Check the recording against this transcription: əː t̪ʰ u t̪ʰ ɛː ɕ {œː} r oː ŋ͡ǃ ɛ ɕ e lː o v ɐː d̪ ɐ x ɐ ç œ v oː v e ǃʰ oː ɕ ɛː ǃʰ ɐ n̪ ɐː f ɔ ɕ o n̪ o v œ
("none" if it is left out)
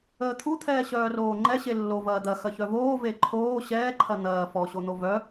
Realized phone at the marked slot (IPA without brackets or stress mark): œː